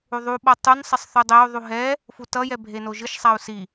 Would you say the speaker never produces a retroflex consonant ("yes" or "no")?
yes